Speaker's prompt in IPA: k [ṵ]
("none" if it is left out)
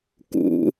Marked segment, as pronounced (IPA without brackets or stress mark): ṵ